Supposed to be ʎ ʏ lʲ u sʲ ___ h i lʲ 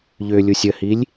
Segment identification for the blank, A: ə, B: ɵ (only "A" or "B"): A